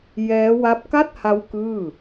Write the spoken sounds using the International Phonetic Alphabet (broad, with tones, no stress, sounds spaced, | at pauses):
j ɛː˦˥ w a˦˥ p̚ k a˥˩ t̚ h a˦˥ w k ɯː˥˩